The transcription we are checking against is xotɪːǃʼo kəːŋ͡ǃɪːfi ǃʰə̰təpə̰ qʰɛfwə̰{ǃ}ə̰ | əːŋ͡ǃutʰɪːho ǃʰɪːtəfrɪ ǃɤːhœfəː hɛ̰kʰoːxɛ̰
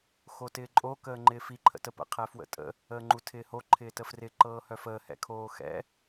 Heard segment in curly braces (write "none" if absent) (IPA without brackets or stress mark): tʼ